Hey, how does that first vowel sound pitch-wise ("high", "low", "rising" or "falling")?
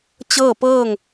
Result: falling